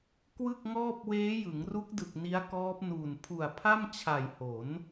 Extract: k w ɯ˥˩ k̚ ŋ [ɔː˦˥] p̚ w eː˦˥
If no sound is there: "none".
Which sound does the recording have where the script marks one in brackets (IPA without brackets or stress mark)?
ɔː˥˩